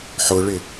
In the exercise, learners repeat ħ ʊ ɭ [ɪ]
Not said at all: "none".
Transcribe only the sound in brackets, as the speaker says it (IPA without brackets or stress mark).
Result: ɪ